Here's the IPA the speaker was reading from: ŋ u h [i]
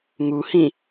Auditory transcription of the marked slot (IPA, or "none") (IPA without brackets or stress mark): ĩ